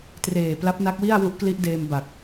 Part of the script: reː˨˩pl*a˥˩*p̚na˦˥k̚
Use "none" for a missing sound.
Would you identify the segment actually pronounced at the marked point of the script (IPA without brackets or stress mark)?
a˦˥